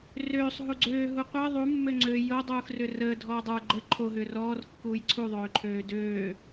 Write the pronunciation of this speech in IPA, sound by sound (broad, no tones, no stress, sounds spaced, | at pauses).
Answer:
r øː sˤ ɦ u ɡ͡ǀ øː ɦ u qʷ əː ðˤ u mː ø ŋ͡ǀ ø j o dˤ uː x r ʏ r əː dʱ ɔː dˤ ə˞ ɡ͡ǃ ə ǃʰ o ɦ ʏː r ɔː r kː uː j ǀʰ u ðˤ øː ǃʰ øː d øː